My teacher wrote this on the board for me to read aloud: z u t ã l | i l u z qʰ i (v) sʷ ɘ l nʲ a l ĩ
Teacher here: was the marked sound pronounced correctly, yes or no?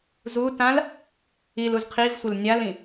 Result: yes